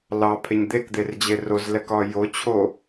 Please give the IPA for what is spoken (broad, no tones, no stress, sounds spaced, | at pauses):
l ɑ pʰ e ɲ d̪ e k d̪ e r d͡ʑ e r o z l ɛ k ɒ j o t͡ɕʰ o